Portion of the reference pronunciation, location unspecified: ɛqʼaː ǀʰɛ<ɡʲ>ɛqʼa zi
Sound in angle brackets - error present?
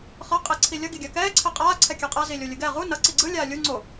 yes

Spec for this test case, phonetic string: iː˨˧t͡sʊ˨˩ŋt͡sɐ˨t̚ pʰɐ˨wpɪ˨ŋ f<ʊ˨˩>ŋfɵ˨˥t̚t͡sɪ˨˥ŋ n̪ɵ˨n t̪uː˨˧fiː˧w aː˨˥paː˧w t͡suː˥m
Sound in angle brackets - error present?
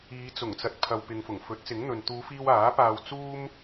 no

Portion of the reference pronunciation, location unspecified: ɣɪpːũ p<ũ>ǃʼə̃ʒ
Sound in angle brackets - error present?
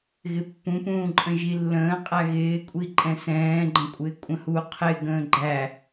yes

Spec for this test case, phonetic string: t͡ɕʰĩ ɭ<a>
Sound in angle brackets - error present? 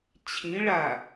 no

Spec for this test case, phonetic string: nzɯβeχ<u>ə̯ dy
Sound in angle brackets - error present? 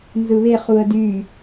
no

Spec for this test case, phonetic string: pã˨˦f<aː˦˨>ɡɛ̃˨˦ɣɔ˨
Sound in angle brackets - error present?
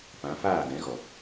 no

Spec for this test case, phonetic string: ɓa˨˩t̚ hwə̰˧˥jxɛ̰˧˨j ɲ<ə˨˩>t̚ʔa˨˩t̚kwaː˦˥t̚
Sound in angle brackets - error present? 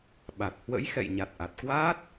yes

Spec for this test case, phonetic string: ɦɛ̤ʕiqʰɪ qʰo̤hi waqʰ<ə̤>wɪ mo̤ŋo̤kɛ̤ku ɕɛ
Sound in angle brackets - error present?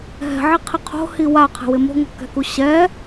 yes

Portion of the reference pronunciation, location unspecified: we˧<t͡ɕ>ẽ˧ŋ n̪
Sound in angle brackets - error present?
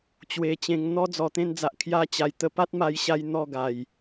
no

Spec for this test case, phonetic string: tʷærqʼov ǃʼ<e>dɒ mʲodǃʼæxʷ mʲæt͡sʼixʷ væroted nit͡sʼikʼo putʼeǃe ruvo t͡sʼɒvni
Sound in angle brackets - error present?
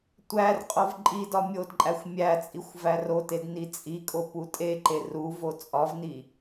yes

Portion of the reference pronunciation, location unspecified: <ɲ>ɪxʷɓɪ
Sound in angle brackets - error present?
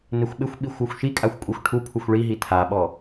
yes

